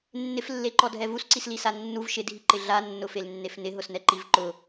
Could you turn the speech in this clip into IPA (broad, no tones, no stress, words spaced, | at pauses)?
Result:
nːɪflːeǃɔdʱɛ vusǀislisa nːuv ʃɪdʱiǃɪ ɮanːʊfelnːef nɪɦʊsnɛǃiv ǃʊ